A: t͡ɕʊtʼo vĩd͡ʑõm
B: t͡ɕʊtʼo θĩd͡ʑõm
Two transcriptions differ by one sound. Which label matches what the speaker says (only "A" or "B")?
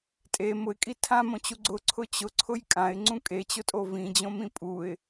A